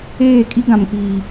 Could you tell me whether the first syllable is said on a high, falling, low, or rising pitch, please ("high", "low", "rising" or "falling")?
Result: falling